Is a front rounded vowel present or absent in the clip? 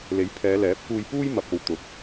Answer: absent